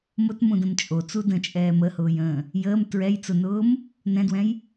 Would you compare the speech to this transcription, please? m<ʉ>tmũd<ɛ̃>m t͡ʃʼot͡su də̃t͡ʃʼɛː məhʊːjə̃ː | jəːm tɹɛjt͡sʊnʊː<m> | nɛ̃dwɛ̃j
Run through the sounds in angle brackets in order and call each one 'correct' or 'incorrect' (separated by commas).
incorrect, incorrect, correct